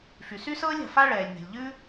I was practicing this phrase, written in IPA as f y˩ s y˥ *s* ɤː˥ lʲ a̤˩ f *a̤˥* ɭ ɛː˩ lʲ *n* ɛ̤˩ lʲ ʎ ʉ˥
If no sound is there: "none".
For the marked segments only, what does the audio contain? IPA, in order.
s, a˥, n

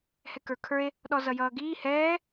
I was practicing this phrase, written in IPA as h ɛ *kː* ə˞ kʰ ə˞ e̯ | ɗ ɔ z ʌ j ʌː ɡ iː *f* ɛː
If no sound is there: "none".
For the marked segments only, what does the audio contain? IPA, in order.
k, h

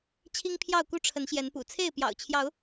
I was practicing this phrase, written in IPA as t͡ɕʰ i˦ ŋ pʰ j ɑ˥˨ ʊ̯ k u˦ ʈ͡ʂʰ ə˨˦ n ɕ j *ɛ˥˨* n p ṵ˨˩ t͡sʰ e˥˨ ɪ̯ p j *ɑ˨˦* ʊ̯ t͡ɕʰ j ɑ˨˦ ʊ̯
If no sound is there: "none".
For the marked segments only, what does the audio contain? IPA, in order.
ɛ˨˦, ɑ̰˨˩

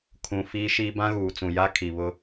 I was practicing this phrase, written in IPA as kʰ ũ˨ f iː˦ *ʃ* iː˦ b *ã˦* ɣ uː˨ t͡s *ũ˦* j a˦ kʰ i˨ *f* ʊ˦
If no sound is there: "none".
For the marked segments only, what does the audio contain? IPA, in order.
ʃ, ã˦, ũ˨, β

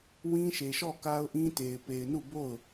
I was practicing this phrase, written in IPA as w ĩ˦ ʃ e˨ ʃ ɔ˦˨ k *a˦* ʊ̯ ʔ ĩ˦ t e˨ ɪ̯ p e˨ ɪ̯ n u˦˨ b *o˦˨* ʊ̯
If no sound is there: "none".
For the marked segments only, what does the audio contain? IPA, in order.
a˦, o˦˨

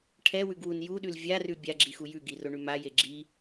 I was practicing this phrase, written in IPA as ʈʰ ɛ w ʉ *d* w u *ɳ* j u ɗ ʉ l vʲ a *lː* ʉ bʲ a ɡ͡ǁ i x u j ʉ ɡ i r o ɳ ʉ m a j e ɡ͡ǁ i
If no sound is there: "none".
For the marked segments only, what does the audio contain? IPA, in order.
ɡ, n, r

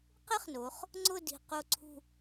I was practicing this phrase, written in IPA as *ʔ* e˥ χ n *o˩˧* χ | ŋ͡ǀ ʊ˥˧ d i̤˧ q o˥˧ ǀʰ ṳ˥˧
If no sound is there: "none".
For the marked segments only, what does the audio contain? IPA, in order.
q, o˩˧

